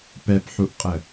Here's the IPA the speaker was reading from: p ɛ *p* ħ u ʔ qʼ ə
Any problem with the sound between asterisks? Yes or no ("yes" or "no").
no